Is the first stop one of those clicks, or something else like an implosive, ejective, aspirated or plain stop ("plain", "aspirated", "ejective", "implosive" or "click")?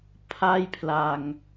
aspirated